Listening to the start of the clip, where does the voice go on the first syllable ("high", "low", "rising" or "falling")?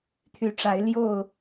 rising